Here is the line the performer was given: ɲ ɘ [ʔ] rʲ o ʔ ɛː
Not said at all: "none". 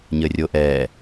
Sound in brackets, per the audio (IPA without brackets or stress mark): none